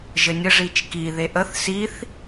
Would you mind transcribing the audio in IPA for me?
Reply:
ʒ ɘ nʲ ə ʐ i t͡ʃ k i ð e ʔ ə θ s i θ

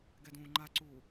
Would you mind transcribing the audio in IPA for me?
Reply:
ɡ ɛ d ũː ŋ͡ǃ a ǀ uː

